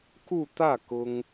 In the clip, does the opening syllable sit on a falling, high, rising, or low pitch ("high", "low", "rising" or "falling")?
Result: falling